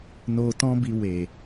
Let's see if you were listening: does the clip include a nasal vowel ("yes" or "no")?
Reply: yes